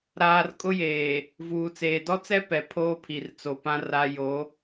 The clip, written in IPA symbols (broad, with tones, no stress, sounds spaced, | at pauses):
ɾ aː˨ r kʼ ʊ˦ j eː˨ | v uː˨ t͡s eː˨ d ɔ˦ t͡s ɛ˦ p ɛ˨ pʰ oː˦ pʰ i˨ r t͡s o˨ p ã˦ r a˦ j o˨˦